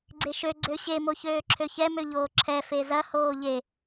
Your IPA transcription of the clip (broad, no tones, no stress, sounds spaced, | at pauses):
ɡ͡ǀ e ʃ ø ɡ͡ǀ ø ɕ e m o ç øː ǁʰ ø ç ɛ m ø ʎ oː ǁʰ ɛ f e z ɐ h oː ʎ e